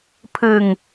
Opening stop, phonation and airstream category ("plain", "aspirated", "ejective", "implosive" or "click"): aspirated